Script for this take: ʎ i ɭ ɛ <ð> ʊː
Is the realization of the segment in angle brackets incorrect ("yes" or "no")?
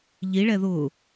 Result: no